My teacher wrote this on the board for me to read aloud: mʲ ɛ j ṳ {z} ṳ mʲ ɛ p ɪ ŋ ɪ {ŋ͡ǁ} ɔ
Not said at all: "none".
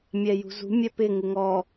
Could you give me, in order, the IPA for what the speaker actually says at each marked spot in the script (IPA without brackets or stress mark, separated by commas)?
z, ŋ